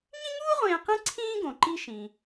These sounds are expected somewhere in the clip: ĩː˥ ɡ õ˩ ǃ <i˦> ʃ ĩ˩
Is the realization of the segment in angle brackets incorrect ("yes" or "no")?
no